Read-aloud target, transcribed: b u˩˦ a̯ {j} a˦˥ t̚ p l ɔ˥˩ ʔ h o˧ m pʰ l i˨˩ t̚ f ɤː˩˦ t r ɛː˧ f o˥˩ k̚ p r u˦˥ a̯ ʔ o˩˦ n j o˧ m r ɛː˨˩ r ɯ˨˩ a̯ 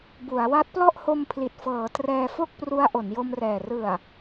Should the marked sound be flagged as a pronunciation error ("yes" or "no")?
yes